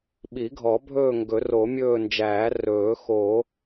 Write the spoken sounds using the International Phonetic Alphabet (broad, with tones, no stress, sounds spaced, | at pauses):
ɓ i˨˩˦ ɡʱ ɔ˨˩˦ bʱ ɵː˦˨ ŋ ɡ ɵ˨˩˦ r o˨˩˦ mʲ ɵː˦˨ n d͡ʒ æː˨˩˦ r ɵː˨˩˦ x o˨˩˦